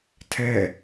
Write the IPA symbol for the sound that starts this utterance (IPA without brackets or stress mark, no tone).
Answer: tʰ